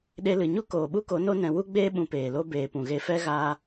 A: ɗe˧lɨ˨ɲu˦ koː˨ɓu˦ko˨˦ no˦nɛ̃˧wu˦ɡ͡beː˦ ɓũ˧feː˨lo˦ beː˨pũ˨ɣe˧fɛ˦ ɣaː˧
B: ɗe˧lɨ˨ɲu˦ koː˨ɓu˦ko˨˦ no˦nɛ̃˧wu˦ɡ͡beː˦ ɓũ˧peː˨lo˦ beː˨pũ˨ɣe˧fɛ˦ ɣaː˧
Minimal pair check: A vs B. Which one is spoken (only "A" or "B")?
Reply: B